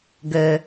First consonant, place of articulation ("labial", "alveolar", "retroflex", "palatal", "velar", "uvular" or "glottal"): velar